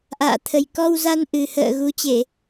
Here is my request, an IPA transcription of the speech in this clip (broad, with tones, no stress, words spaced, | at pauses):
ʔa̰ː˧˨t̪ʰə˨˩jkɔ˧wza˧n ʔɨ˨˩ hə̰ː˧˨ ɣu˨˦t͡ɕe˧˩˨